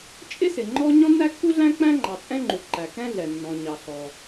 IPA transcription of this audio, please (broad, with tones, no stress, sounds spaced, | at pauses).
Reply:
t͡ʃʼ ɪ˥ s ɪ˩ ŋ͡ǃ ɔ˥ ɲ ɔ̃˥ nː æ˥ kː u˥ ɮ æ̃˥ k͡p æ̃˥ ŋ͡ǃ ɑ˩ t͡sʼ ɛ̃˥ ŋ͡ǃ u˩ ǃ æ˩ k ɛ̃˥ ɮ ɛ˩ nː ɔ̃˩ ɲ ɑ˩ ɬ ɔ˩